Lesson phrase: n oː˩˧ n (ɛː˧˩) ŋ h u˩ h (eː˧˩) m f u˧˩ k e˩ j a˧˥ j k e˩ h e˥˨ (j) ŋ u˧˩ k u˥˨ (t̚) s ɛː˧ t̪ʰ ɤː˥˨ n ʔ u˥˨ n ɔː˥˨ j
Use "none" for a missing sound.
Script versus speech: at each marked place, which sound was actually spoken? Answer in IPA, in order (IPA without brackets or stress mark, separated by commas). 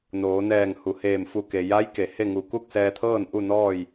ɛː˧˩, eː˧˩, none, k̚